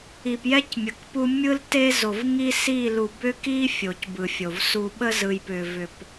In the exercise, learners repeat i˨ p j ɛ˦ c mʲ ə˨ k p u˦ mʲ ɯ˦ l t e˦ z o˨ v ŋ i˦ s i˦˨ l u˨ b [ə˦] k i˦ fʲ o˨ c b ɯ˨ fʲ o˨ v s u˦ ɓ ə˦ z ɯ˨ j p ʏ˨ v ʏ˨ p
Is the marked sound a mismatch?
yes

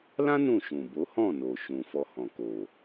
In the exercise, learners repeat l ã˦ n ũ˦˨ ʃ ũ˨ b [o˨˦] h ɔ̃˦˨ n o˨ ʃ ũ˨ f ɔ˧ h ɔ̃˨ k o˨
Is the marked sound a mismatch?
no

